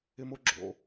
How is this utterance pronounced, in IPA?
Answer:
ɪ˩mo˩ ɡ͡ǁo̰˩

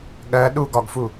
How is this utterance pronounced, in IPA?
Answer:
ɠɜ ɗuɡɒɡfu

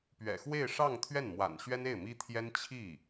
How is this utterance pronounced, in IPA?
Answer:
pɥɛ̰˨˩xwe˥˧ɪ̯ʂɑ˥˧ŋ t̪ʰɥɛ˥˩nmwa̰˨˩n ɕɥɛ˥ne˥˩ɪ̯mi˥t̪ʰjɛ˥n t͡ɕʰi˥˩

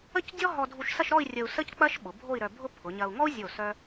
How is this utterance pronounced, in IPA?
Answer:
ə˥cdʲɔ˥ ɦɔ˧dʱu˧ʃsɐ˥˧ʃɾɔ˥˧i̯ rʲə˧u̯sə˥ck͡pɐ˥ʃ ɓʊ˩˧bʱo˥˧i̯ɾœ˧bʱʊ˥ pʰʊ˩˧ɲɐ˧u̯ ŋɔ˥u̯zʲo˧˩ sœ˥

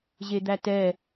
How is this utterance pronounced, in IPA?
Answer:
ʑed̪ætɛ

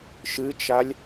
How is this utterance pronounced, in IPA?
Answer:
ʃɨt͡ʃalʲ

